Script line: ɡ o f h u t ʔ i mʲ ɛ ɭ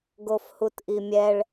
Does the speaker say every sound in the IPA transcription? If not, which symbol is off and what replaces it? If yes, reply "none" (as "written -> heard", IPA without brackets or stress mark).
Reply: none